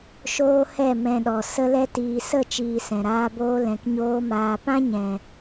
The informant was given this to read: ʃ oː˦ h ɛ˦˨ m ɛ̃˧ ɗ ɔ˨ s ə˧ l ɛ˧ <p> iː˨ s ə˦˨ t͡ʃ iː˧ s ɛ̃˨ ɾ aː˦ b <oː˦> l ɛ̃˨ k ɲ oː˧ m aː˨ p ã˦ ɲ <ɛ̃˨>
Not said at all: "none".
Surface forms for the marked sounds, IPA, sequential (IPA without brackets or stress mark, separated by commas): t, oː˦, ɛ̃˨